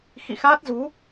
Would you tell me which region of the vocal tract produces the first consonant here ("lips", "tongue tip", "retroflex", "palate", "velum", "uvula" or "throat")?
velum